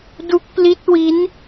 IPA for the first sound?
d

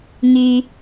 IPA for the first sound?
ŋ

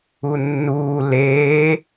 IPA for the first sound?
u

